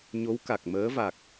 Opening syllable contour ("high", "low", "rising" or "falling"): rising